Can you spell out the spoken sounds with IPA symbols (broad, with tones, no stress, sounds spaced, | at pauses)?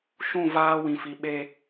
ʃ ũ˦˨ v aː˦ w ĩ˨ f i˨ ɓ e˦